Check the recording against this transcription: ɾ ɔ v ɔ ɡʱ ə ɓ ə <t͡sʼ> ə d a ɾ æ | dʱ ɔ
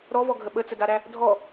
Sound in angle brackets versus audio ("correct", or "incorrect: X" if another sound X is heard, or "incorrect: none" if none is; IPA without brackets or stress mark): incorrect: t͡s